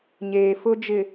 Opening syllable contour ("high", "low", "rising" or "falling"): low